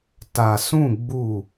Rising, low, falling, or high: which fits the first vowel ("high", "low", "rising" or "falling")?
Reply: low